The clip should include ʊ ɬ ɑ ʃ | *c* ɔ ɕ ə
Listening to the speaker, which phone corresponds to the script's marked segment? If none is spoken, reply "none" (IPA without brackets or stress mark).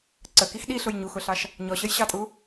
ɲ